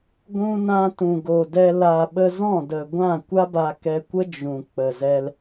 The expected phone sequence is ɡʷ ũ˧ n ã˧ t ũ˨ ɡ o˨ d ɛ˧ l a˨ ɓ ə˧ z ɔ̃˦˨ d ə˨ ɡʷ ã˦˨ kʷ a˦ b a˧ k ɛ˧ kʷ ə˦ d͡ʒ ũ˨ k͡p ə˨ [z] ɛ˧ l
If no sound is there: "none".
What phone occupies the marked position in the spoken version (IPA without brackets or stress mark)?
z